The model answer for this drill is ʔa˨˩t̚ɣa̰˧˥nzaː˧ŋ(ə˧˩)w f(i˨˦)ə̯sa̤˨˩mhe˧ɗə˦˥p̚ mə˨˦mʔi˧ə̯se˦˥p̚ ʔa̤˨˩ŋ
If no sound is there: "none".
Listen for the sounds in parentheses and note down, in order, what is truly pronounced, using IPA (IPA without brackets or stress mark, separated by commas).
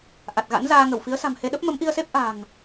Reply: ə˧˩, i˨˦